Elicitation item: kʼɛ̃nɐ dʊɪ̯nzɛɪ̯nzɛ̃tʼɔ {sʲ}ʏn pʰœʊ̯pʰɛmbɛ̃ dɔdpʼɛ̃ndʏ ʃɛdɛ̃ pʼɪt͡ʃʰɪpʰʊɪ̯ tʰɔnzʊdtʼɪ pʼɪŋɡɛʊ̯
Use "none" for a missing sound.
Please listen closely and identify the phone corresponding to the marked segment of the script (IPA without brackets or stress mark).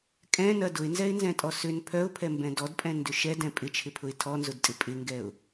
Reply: s